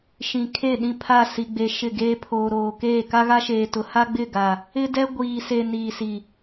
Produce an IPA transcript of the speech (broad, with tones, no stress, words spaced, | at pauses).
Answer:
ʃĩ˨kʰe˦˨ɗĩ˦˨pʰa˦˨ si˨ɡ͡be˨ ʃɪ˦˨ɡeː˦ pʰoː˨ɾoː˨ keː˦˨ ka˦ɣa˦ʃeː˨tʊ˨ ha˦ɡ͡bɪ˦˨ɡa˨ | ɪ˦dɛ˦ ɡʷiː˨se˨ niː˨si˨